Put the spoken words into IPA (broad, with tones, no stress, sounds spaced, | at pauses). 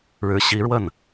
ɻ ɻ̩˧˥ ɕ i˧˥ ɻ w ə˥˩ n